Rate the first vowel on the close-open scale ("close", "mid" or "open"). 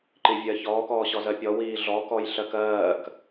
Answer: close